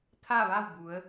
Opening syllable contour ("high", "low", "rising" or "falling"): falling